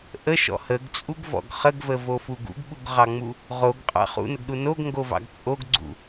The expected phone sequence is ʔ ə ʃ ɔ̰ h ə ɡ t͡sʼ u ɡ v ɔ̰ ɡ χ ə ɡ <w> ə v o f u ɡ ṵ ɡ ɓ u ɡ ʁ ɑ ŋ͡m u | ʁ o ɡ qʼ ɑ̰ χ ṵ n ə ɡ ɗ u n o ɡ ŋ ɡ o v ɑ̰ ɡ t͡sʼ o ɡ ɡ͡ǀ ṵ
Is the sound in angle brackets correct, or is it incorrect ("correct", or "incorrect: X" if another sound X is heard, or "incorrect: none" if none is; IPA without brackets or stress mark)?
incorrect: v